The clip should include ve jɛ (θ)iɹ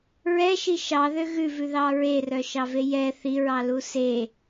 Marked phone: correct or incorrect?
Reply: correct